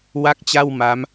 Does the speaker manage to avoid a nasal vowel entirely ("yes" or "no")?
yes